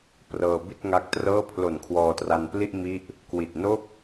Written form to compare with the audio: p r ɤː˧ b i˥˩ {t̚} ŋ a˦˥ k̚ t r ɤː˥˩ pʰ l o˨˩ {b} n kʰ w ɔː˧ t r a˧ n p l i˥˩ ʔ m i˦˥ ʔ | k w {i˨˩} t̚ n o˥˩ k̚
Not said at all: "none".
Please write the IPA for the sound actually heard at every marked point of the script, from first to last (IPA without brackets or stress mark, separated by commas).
t̚, none, i˨˩